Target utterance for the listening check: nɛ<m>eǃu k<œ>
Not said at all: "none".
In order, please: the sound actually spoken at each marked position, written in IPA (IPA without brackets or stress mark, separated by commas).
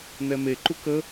m, ə